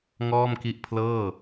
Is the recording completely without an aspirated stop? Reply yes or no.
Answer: no